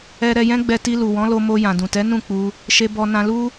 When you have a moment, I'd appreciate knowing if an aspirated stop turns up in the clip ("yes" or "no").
no